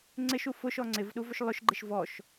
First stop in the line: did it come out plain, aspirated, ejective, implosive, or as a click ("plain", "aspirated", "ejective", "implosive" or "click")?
click